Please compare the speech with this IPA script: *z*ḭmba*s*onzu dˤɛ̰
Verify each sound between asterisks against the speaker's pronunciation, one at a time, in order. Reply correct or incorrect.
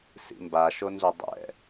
incorrect: s, incorrect: ʃ

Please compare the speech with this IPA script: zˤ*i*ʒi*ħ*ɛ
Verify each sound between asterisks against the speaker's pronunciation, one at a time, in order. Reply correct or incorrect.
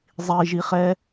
correct, incorrect: χ

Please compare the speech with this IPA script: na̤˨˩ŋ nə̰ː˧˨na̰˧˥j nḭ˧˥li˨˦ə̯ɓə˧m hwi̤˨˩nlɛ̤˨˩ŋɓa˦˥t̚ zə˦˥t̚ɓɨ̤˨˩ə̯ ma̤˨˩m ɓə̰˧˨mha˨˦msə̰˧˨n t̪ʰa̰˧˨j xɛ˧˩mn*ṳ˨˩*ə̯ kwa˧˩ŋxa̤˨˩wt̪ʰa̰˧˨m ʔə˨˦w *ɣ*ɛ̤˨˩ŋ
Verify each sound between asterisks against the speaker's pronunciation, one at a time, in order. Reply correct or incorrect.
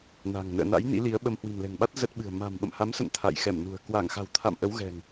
correct, correct

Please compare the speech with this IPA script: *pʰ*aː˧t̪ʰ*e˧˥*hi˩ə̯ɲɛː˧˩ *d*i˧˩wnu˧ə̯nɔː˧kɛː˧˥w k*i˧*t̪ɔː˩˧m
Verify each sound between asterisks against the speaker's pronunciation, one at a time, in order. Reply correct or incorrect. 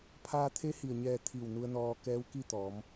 correct, correct, incorrect: t̪ʰ, incorrect: i˥˨

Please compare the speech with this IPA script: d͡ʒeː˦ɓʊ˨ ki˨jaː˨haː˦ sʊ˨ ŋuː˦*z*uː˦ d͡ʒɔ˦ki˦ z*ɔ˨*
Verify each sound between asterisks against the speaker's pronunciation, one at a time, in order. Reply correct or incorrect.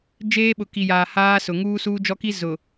incorrect: s, incorrect: ʊ˨

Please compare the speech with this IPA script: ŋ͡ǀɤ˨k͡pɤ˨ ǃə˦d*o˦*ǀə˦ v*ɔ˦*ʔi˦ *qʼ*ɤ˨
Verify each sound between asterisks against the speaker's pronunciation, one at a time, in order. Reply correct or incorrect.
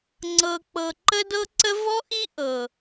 incorrect: ɤ˦, correct, incorrect: ʔ

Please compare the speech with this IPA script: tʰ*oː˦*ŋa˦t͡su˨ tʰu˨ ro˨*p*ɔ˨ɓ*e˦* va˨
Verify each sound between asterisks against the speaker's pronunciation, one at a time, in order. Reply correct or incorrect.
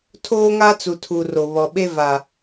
correct, incorrect: β, correct

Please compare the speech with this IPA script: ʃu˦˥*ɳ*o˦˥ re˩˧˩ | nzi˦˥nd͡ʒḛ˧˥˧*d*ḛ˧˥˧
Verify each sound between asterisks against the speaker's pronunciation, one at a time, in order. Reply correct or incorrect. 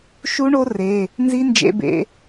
correct, incorrect: b

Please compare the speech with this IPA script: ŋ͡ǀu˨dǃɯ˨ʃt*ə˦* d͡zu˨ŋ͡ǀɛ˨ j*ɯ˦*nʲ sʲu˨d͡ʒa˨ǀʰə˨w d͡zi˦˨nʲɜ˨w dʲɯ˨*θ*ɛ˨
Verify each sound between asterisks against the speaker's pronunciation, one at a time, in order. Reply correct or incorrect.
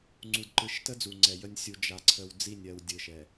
correct, incorrect: ə˦, incorrect: ʃ

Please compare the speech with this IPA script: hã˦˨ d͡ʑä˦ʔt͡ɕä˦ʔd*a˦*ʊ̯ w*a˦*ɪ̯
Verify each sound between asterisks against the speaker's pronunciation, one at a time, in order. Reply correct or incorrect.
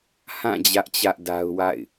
correct, incorrect: a̰˦˨

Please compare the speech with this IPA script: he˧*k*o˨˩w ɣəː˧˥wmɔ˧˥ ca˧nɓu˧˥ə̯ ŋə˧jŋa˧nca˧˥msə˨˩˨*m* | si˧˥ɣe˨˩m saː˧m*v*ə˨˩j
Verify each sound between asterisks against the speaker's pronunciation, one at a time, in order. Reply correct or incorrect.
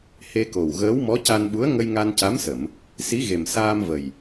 correct, correct, correct

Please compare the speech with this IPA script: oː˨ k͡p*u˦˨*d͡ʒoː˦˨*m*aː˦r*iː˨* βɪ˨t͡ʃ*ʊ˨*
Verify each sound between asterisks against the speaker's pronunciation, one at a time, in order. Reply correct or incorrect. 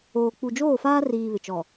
incorrect: u˨, incorrect: f, correct, incorrect: ɔ˨

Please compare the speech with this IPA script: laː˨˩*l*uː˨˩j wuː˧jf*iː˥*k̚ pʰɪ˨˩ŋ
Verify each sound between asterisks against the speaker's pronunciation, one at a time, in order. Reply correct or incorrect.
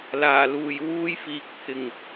correct, incorrect: iː˨

